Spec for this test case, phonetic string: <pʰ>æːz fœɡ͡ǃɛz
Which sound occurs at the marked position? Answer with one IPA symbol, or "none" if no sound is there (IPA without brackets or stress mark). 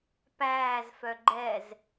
p